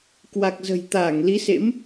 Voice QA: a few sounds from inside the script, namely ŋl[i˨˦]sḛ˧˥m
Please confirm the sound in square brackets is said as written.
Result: yes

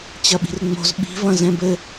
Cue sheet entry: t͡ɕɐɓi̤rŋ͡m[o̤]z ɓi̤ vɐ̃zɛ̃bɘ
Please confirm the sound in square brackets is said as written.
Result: yes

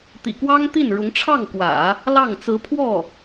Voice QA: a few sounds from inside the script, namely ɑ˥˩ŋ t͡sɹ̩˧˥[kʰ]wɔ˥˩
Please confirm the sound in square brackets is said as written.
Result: no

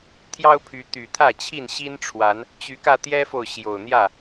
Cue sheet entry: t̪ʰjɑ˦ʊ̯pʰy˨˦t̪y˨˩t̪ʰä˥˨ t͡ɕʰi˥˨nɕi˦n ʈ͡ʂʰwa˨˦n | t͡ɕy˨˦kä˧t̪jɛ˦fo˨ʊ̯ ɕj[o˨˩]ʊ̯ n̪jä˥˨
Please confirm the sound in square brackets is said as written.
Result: yes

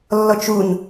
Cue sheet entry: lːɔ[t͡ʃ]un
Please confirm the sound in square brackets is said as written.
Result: yes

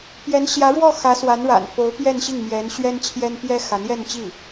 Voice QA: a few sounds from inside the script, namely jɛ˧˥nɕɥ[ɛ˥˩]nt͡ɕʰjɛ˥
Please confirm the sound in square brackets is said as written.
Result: no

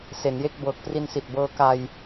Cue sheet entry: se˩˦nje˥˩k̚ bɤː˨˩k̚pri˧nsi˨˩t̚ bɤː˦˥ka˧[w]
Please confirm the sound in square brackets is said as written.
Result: no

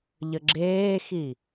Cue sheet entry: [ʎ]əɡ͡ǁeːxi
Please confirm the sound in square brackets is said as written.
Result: yes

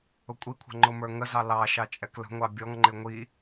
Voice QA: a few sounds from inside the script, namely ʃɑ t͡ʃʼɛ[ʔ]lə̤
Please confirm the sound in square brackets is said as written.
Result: no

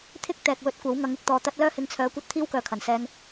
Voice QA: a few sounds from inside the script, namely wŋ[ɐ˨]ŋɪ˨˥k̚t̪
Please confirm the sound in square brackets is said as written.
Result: no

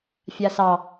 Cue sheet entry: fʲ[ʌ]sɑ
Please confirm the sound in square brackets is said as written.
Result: no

